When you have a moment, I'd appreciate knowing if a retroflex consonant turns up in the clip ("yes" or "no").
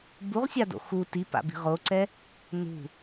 no